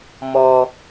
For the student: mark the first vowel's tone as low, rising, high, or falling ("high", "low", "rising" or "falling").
low